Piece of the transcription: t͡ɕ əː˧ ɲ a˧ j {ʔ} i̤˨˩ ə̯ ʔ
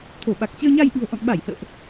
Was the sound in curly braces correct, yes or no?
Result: yes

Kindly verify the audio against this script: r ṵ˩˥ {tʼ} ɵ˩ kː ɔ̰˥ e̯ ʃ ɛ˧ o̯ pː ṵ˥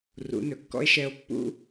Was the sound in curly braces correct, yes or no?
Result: no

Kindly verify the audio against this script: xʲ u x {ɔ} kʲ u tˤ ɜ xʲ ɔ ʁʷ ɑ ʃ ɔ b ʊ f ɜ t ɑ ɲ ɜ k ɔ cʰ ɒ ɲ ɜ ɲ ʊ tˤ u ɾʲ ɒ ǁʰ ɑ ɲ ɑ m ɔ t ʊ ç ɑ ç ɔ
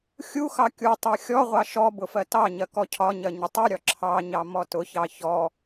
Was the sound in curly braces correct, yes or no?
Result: no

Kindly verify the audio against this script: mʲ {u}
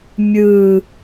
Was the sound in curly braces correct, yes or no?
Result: no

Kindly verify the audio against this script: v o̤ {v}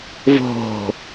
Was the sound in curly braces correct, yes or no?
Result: no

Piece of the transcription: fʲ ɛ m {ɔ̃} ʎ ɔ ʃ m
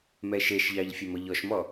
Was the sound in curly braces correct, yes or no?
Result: no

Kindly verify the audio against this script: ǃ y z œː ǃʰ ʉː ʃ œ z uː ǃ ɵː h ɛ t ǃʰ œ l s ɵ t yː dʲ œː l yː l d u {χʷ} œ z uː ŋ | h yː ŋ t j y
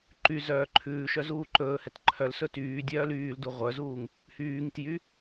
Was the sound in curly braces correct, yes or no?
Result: no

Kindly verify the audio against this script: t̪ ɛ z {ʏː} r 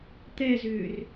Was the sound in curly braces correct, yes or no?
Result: yes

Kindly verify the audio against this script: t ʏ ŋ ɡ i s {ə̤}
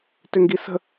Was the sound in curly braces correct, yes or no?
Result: yes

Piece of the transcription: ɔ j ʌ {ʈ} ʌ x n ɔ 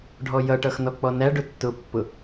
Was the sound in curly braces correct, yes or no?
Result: yes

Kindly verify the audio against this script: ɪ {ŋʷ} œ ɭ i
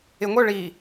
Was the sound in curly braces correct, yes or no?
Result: yes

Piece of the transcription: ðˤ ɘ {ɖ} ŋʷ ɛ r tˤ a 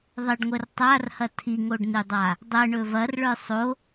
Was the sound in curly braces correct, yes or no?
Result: yes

